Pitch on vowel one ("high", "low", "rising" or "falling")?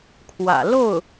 low